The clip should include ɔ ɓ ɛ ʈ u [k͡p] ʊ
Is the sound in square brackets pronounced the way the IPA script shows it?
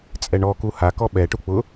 yes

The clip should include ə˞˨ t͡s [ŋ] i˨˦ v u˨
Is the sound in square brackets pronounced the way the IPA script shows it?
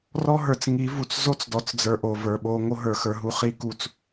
yes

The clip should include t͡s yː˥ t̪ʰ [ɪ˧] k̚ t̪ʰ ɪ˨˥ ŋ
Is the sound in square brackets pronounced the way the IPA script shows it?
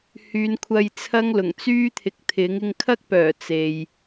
no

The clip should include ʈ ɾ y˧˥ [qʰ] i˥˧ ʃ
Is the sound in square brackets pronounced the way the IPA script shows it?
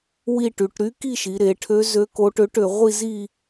no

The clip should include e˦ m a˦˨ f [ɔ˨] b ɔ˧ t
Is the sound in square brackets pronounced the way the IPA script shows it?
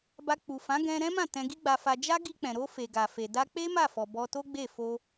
yes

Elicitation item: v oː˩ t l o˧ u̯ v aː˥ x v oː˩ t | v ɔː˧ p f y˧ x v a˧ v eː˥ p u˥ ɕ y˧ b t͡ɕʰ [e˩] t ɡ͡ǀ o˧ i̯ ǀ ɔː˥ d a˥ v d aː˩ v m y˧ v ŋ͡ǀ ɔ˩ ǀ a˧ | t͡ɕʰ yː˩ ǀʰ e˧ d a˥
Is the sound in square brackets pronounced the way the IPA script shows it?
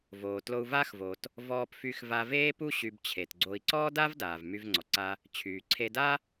yes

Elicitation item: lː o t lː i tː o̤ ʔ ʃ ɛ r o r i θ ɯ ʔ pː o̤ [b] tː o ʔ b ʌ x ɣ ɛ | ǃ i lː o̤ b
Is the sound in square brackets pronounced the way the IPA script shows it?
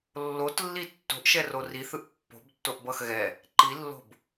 yes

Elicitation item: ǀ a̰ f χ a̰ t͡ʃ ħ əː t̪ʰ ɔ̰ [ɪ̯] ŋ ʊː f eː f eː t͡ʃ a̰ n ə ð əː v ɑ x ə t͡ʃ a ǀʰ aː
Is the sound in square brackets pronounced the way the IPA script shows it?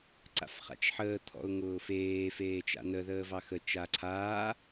no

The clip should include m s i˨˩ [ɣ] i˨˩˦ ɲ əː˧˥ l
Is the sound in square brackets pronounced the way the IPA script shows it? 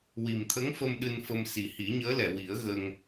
no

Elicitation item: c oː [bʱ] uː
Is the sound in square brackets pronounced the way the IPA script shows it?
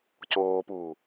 no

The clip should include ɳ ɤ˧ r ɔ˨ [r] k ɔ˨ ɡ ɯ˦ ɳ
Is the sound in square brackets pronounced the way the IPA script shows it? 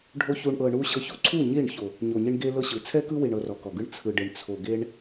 no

